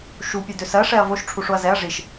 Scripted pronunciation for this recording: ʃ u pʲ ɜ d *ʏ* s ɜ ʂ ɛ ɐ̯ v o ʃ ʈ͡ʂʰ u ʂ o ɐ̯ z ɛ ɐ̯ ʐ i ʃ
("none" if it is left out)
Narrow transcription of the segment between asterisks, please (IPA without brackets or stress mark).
ʏ